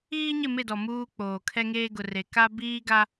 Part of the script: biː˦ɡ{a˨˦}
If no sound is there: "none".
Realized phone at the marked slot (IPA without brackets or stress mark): a˦